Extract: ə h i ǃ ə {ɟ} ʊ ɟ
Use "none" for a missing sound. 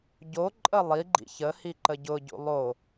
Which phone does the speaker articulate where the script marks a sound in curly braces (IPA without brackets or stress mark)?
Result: ɟ